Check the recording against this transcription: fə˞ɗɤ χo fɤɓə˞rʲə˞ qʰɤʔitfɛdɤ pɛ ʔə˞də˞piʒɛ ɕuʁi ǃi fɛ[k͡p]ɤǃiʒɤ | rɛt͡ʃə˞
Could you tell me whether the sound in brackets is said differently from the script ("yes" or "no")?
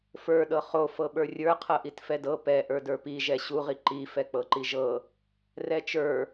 no